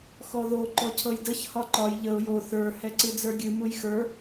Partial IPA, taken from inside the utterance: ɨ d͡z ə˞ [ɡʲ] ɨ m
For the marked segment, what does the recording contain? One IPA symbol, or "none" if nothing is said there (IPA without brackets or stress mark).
ɡʲ